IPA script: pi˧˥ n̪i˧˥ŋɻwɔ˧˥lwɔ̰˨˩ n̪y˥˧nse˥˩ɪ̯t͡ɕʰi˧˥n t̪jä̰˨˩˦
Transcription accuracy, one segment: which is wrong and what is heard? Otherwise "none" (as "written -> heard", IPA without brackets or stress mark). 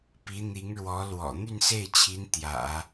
none